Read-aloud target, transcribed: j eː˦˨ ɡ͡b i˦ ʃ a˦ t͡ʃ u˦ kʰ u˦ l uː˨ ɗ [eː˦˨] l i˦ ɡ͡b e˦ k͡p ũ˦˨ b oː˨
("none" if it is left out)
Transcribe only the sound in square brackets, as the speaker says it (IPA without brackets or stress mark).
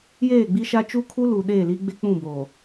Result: eː˦˨